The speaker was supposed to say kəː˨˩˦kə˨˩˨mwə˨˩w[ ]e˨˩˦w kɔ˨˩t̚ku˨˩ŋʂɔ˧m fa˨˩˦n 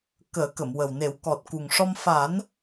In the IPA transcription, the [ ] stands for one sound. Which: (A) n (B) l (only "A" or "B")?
A